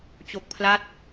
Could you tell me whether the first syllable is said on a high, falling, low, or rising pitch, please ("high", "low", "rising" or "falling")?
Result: low